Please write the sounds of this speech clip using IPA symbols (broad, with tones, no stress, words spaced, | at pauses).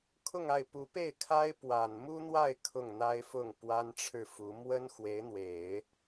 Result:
kʰʊ˥˧ŋa˥˩ɪ̯ pu˧˥pe˥˩ɪ̯kʰa˥ɪ̯ pwa˨˩n mu˥n̪wa˥˧ɪ̯ kʰʊ˥˩ŋn̪a˥ɪ̯fʊ˥˩ŋ pwa˥nʈ͡ʂʰɻ̩˥˩fu˧˥ mwə˥nxwe˧˥ɪ̯n̪we˨˩˦ɪ̯